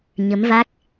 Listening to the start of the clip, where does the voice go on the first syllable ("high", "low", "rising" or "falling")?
rising